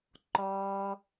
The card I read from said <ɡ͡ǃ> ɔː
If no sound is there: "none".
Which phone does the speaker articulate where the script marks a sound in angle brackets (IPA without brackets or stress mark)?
ǃ